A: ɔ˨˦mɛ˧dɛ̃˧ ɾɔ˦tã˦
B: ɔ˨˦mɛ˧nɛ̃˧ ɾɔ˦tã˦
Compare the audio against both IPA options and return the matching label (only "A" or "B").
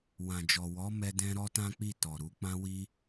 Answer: A